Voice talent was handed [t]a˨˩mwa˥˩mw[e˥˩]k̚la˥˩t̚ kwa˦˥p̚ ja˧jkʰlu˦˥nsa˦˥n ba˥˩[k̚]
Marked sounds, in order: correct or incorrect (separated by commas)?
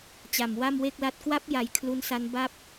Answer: incorrect, correct, incorrect